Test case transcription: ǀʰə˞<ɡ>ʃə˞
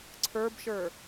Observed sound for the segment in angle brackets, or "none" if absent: b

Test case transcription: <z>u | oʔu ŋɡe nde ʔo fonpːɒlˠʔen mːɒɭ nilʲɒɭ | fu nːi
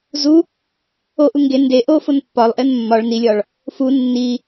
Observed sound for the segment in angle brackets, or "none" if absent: z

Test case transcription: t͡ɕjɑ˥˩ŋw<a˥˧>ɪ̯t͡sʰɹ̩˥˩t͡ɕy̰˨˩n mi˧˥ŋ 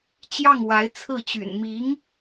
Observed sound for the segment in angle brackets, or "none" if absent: a˧˥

